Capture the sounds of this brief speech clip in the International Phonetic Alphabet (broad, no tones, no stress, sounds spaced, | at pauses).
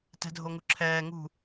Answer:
t ɛ̤ dʱ o ŋ u ǁʰ ɛː ŋ ṳ